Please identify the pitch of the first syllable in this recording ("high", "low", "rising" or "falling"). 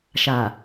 low